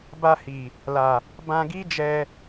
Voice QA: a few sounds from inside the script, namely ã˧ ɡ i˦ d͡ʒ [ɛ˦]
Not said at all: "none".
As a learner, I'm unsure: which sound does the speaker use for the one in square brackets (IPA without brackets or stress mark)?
ɛ˧